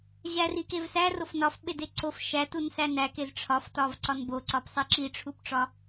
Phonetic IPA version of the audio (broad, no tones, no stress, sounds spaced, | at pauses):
ʑ æ r i k e v s æ r o f n ɒ f ɓ e d e ǀ o f ʃ æ t u n s æ n æ k e z ʈ͡ʂʰ ɒ f t ɒ v ǀ ɒ n b o ǀ ɒ p sˤ i ǁ i ʈ͡ʂʰ u p ʈ͡ʂ ɒ